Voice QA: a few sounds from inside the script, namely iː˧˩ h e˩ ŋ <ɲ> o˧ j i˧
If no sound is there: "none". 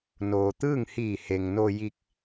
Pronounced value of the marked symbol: n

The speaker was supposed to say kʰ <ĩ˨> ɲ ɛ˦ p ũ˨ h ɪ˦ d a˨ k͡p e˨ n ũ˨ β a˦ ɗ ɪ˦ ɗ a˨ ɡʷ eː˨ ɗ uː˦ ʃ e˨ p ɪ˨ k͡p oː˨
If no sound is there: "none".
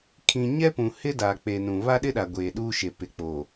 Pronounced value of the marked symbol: ĩ˨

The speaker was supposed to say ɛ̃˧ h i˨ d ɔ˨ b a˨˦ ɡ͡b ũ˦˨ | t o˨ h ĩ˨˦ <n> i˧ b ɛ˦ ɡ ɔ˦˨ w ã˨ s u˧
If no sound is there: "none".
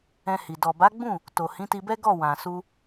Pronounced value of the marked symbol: t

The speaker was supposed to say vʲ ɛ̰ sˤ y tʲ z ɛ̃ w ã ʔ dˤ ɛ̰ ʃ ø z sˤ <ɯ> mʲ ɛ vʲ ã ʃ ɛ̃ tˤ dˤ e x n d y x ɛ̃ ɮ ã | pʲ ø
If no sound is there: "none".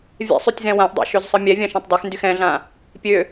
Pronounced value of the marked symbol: ɯ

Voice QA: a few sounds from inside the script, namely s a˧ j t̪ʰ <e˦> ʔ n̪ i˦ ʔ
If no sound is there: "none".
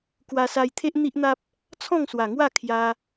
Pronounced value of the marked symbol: e˦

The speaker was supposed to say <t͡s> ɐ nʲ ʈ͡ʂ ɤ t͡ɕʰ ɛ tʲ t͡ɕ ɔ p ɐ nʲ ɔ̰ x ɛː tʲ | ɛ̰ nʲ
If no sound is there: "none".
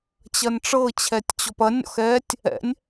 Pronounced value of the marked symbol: t͡ɕ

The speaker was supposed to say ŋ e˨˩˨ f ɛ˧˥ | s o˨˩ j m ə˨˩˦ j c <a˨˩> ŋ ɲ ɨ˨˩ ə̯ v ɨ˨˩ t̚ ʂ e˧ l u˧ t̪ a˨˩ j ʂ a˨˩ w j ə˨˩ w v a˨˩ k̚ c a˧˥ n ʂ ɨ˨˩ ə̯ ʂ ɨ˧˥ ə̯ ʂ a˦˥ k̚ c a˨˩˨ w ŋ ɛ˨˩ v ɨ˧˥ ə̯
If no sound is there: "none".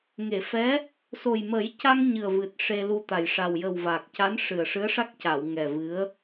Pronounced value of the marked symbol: a˧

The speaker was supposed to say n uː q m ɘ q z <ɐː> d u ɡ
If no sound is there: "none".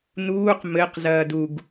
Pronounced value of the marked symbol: ɐː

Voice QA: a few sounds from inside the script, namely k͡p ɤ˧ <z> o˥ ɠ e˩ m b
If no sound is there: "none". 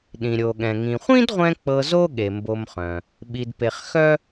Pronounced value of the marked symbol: z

